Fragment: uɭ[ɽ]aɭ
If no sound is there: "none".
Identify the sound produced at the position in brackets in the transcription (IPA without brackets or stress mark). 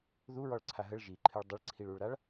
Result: ɾ